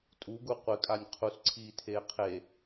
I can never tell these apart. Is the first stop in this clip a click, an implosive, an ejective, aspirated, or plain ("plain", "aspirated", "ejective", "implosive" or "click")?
ejective